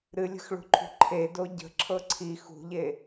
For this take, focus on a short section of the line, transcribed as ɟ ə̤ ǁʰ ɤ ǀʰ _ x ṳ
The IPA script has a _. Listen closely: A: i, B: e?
A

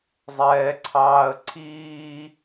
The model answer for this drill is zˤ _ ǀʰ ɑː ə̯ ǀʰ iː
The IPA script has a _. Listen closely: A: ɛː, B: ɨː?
A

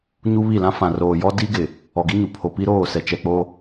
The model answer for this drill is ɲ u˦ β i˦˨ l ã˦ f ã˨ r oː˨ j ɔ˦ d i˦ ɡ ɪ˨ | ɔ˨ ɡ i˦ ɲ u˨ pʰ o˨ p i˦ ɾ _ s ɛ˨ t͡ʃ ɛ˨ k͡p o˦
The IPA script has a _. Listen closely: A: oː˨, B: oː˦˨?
B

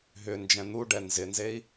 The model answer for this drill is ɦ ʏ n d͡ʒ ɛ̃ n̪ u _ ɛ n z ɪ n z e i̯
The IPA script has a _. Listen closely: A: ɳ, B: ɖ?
B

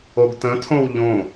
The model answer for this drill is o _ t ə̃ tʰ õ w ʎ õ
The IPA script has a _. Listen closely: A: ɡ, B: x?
A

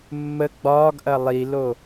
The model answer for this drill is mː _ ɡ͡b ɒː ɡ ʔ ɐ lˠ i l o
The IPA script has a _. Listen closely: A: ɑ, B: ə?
B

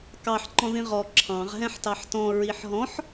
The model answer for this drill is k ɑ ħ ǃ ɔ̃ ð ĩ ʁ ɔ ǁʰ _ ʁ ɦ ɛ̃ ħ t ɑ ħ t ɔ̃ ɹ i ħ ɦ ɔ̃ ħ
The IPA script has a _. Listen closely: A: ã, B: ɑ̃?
B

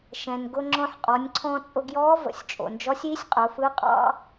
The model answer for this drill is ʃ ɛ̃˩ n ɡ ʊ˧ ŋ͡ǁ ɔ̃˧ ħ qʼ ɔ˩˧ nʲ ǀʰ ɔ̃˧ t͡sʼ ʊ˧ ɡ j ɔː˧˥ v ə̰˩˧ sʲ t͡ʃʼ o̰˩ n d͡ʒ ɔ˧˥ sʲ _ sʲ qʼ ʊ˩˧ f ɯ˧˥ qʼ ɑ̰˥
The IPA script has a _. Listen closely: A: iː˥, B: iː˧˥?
B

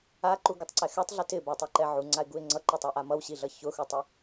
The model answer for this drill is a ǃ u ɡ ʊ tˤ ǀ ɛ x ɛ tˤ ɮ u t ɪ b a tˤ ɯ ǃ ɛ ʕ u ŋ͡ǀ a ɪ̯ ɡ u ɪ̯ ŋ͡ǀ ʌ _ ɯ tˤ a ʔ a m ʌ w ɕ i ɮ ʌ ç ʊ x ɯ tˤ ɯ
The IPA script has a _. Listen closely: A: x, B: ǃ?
B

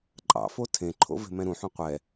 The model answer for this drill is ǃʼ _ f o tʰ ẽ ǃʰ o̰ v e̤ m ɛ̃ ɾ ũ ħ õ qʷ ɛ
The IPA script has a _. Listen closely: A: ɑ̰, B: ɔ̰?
A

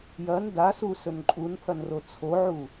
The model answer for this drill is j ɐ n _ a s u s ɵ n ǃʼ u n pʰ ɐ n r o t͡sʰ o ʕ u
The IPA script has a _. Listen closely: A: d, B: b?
A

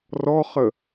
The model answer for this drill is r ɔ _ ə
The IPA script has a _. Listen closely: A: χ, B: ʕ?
A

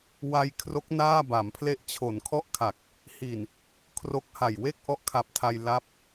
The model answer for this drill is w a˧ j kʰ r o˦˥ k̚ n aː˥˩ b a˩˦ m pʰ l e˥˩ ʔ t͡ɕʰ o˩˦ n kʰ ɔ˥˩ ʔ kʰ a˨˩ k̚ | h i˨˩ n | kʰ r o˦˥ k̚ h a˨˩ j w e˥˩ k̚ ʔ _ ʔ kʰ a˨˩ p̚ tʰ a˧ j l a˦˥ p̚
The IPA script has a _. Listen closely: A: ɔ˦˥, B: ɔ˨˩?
A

